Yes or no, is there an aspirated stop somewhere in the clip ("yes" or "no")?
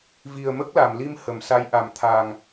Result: yes